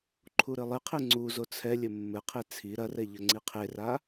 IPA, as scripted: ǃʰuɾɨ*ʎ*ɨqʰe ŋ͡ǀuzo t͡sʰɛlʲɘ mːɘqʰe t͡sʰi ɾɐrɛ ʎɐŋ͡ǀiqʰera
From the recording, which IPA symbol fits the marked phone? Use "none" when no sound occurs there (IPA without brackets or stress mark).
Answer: lˠ